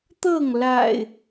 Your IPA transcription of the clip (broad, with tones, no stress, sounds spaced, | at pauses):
t̪ ɤ˥˨ ŋ l a̰˨˩ ɪ̯